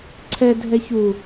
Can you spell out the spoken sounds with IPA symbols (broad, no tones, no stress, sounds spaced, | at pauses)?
ǀʰ ɛ dʱ ɛ ç u